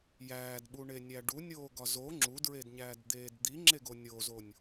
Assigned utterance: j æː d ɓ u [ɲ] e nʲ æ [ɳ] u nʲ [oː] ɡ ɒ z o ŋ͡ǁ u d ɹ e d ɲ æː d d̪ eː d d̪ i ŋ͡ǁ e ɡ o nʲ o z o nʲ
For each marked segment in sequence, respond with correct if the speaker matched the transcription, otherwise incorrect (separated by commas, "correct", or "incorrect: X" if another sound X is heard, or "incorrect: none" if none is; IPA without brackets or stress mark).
incorrect: ɳ, incorrect: ɖ, correct